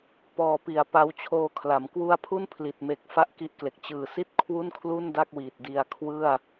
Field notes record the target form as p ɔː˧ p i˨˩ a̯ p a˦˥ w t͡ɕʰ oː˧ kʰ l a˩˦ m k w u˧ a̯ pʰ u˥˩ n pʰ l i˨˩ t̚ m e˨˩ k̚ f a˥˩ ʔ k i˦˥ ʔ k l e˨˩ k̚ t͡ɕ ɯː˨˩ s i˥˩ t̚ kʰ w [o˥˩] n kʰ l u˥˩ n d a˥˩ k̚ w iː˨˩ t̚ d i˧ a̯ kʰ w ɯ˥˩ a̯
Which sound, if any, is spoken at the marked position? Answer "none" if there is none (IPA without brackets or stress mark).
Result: u˥˩